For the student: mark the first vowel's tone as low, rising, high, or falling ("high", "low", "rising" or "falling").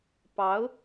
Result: rising